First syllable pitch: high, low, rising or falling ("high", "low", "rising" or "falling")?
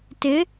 rising